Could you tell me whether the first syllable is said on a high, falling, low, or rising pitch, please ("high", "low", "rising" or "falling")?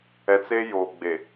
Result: low